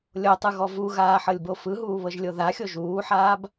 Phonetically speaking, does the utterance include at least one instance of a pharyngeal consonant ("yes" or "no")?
yes